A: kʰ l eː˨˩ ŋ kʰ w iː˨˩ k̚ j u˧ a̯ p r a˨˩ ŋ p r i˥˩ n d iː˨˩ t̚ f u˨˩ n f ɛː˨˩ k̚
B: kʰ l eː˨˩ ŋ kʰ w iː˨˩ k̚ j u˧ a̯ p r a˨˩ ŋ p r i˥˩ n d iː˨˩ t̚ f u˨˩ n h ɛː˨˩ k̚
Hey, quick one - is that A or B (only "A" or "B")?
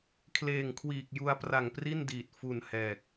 B